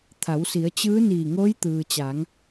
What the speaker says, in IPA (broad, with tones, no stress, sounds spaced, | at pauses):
t̪ʰ a˩˧ w s i˩˧ ə̯ t͡ɕ ɯː˧˥ n iː˧˩ ŋ oː˧˥ j t̪ ɯː˩ t͡ɕ aː˩˧ ŋ